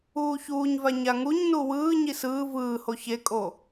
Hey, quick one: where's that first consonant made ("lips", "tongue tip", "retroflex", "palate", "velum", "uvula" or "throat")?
palate